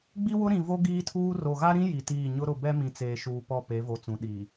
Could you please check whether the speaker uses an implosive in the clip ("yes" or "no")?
yes